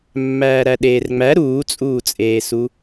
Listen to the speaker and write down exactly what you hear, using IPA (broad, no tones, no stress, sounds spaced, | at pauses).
mː æː ɾ æ ɗ eː r ŋ͡m æ ɾ uː t͡sʼ uː t͡sʼ eː s u